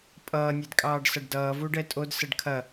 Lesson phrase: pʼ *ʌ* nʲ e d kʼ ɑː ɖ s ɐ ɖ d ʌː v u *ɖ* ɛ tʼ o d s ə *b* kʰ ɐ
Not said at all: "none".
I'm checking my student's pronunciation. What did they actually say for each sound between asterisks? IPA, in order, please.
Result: ʌː, ɖ, ɖ

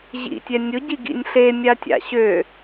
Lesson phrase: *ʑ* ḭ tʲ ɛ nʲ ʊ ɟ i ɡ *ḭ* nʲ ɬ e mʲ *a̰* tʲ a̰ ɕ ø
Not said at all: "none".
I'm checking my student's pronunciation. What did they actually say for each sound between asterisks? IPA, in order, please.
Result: ʑ, ḭ, a

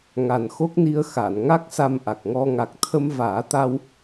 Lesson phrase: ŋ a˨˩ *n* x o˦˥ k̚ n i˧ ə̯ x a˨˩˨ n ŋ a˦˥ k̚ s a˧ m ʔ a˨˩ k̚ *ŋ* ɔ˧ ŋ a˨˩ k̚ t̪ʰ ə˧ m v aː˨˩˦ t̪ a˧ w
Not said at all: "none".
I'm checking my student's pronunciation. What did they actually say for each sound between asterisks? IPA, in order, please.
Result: n, ŋ

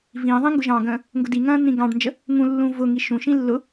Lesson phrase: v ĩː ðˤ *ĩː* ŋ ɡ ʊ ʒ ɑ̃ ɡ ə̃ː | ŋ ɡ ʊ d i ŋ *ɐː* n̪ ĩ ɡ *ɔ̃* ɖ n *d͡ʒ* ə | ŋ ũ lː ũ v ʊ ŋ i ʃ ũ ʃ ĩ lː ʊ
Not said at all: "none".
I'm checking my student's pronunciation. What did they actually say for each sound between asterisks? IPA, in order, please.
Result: ĩ, ɐ̃ː, ɑ̃, d͡ʒ

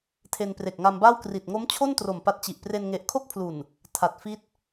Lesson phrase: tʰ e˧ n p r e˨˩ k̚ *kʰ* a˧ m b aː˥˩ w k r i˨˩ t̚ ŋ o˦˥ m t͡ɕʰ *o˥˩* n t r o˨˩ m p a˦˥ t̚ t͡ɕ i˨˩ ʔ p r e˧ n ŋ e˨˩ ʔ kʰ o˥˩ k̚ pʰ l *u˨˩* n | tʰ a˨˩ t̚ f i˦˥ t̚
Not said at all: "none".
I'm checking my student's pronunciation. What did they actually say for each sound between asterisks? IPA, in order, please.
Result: ŋ, o˥˩, u˨˩

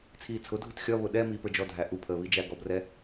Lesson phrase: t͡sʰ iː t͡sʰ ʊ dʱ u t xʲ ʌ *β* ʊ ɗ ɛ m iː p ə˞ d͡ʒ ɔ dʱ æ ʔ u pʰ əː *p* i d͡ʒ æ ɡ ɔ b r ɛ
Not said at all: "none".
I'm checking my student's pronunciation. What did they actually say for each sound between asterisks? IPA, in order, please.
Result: β, β

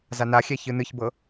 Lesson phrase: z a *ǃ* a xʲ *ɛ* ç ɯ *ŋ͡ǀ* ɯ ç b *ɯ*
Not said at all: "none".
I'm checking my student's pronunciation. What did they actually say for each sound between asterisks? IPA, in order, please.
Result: n, ɛ, n, ɤ

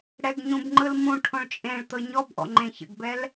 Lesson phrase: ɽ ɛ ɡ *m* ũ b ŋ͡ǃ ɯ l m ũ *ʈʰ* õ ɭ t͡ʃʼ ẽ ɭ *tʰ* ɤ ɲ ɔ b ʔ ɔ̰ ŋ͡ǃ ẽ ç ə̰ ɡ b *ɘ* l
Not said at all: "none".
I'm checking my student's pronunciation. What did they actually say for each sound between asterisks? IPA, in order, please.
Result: ɲ, ʈʰ, t̪, ɛ

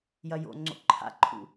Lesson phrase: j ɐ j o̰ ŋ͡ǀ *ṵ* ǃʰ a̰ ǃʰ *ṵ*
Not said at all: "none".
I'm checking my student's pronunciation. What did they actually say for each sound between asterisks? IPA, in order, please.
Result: o̰, ṵ

